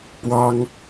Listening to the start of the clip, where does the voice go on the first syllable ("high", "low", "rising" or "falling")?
high